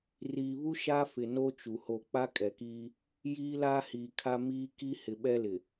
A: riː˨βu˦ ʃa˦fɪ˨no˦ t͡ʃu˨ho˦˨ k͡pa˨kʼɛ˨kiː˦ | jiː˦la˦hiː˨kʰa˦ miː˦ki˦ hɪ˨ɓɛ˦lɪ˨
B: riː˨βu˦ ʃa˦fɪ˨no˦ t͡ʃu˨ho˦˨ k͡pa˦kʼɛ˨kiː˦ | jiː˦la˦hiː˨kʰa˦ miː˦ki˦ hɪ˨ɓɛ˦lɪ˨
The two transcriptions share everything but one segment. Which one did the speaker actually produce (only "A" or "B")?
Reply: B